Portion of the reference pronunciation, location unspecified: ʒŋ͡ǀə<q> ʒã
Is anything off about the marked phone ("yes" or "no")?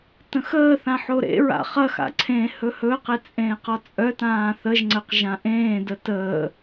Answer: no